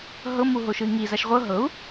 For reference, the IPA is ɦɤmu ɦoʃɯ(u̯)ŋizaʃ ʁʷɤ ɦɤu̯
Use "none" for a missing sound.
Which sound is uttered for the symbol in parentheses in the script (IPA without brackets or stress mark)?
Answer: i̯